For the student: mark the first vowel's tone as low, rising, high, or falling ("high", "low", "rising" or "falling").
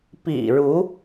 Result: low